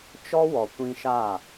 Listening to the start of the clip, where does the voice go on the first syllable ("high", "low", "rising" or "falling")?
high